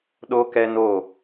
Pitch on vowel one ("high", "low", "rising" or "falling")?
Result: high